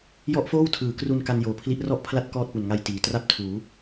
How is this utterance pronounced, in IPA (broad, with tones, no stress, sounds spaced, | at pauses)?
j ɔ˥˩ ʔ f oː˥˩ w tʰ ɯː˩˦ k r u˧ n k a˧ n j oː˨˩ pʰ l i˦˥ ʔ r ɔ˥˩ ʔ pʰ l a˥˩ t̚ k ɔː˥˩ t̚ p u˨˩ n ŋ a˧ j t iː˩˦ t r a˥˩ p̚ tʰ uː˩˦